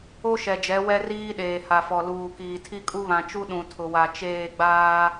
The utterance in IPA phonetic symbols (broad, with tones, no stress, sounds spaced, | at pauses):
o˦ ʃ ɛ˨ d͡ʒ ɛ˨˦ w ɛ˦ r iː˦ ɗ eː˨ h a˨ f ɔ˨ l uː˨ k iː˨ tʰ i˦ kʼ u˦ β ã˨ t͡ʃ u˦ ɗ ũ˨ tʰ ʊ˨ w a˨ t͡ʃ eː˦˨ ɡ͡b aː˦